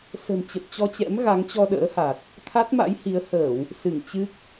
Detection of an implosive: present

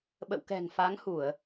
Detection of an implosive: present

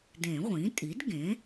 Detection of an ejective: present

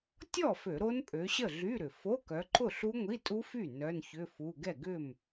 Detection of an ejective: present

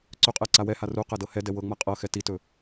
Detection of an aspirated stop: absent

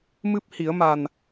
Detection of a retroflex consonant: absent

